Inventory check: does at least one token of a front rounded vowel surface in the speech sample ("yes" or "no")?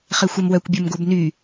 yes